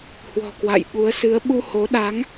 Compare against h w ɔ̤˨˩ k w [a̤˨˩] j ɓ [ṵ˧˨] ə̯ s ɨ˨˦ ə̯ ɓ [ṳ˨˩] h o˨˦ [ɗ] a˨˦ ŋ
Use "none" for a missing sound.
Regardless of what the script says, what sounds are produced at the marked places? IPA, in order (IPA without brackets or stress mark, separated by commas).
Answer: a̰˧˨, u˨˦, u˧, ɗ